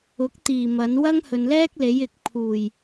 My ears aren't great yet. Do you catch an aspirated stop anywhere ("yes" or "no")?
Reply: yes